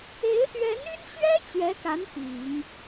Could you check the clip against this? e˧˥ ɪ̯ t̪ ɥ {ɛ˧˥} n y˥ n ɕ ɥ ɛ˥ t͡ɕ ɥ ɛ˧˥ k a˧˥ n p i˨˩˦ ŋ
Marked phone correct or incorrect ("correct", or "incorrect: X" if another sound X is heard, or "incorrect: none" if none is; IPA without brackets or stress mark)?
correct